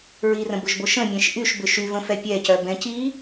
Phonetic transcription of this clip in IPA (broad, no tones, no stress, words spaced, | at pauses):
ɹirə̃bʊʒbo ʃə̃mʲɛ̃ʃ ʔyʃbʏ ʃyvə̃fɛ pʲɛcœbɛ̃ ci